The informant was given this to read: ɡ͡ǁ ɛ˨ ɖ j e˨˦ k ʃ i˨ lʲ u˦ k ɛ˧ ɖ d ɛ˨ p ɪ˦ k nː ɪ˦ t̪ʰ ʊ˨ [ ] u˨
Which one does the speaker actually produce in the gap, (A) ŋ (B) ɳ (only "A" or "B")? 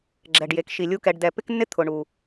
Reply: B